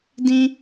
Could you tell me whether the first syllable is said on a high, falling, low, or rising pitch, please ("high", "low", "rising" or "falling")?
high